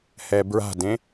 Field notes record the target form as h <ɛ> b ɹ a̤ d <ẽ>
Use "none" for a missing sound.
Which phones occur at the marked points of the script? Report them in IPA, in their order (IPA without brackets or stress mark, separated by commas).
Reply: ɛ, ẽ